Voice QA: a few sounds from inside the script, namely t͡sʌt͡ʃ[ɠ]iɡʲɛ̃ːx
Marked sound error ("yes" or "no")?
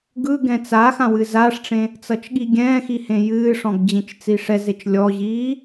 no